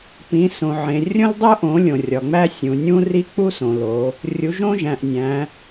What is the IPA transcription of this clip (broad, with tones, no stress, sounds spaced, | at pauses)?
p ĩ˨˦ s õ˨ ʕ ẽ˨ rʲ õ˥ l dˤ o˥ ʔ õ˨˦ lʲ õ˨ rʲ ɒ˨ ŋ͡m æ˥ sʲ ũ˨ nʲ ũ˥ r i˥ k͡p u˥ s õ˨ l o˨˦ | rʲ u˨˦ ʒ õ˥ ʒ æ̃˨ ʔ nʲ æ̃˨˦